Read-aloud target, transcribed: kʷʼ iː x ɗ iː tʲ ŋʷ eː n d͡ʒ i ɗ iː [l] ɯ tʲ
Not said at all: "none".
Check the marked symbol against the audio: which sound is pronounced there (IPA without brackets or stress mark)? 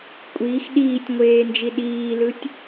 l